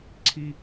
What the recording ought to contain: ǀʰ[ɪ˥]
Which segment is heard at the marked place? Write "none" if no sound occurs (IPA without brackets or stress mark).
i˥